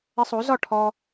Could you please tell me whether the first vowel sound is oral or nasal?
oral